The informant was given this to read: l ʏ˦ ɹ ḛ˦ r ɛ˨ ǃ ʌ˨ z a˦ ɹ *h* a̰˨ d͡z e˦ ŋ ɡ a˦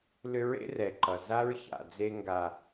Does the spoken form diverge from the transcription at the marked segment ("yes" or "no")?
yes